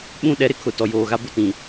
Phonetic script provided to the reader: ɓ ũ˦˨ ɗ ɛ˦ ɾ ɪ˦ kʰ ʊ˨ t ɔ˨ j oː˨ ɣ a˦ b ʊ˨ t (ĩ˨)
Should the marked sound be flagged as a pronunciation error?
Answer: no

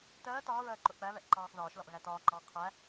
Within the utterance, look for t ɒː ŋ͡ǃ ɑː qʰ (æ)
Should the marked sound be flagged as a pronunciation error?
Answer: no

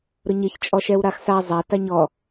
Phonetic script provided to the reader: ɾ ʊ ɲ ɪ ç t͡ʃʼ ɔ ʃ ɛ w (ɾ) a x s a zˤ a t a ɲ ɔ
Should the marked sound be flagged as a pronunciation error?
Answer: no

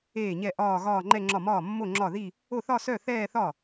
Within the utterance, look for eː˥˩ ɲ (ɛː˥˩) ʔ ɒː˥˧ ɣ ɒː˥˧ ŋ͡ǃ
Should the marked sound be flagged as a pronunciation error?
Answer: yes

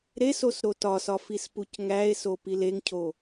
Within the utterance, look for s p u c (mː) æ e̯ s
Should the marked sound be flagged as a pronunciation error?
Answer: yes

